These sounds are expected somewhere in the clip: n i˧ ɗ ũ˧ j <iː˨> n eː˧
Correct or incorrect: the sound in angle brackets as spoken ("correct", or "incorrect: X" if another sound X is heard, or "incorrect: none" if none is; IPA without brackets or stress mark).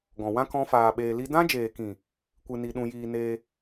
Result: incorrect: iː˧